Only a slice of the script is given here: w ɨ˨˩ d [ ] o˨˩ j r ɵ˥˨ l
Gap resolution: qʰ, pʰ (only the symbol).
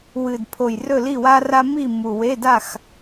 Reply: pʰ